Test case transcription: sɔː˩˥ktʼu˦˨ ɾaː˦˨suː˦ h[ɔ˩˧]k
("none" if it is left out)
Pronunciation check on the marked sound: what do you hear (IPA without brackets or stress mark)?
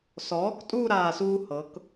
ɤ˩˧